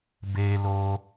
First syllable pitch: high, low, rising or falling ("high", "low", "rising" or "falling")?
high